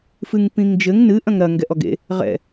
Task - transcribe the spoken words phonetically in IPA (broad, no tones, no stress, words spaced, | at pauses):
fɨŋpĩŋd͡ʒɘŋ nɨ ʔɐ̃ŋɾɐ ŋɡɛʔɔɡḛ | ʁɛ̰